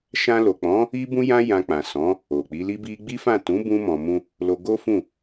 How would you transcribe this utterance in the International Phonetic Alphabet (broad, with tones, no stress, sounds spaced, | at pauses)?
ʃ ã˧ l o˨ k͡p ɔ̃˨˦ | i˦ b ũ˦ j ã˦ j ã˧ k͡p ã˨ s ɔ̃˨˦ | o˨ k͡p i˨˦ l i˦ b i˦ ɡ͡b i˦ f ã˦˨ t ũ˨˦ b ũ˧ m ɔ̃˨ m ũ˧ | l o˧ ɡ o˦ f ũ˦˨